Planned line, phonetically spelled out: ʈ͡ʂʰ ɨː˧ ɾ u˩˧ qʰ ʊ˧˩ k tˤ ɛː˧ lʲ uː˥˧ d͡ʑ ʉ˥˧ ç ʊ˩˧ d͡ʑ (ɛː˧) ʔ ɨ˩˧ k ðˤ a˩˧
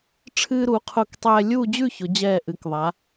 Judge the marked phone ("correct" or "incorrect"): incorrect